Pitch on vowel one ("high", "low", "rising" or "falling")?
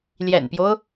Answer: low